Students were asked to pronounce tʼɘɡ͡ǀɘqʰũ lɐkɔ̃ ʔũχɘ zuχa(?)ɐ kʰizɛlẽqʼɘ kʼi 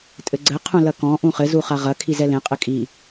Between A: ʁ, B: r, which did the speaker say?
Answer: A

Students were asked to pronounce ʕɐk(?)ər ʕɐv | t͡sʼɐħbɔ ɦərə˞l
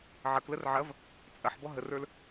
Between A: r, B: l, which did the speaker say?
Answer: B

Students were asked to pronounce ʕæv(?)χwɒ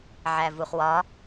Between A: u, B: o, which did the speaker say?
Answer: A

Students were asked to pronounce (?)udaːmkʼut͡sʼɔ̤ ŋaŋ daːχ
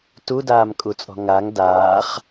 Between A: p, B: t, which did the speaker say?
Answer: B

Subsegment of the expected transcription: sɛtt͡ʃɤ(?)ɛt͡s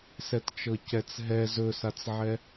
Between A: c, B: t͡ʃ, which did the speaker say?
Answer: A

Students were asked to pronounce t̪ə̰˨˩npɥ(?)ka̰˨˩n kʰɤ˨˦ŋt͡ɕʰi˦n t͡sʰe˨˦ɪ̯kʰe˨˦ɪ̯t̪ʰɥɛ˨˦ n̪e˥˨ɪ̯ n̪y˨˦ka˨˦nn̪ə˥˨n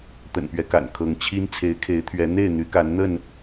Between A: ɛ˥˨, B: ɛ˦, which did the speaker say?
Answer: B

